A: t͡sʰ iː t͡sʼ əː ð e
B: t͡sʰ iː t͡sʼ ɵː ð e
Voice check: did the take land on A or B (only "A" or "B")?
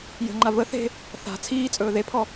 B